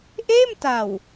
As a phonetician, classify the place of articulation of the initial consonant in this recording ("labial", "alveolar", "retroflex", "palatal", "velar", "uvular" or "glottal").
glottal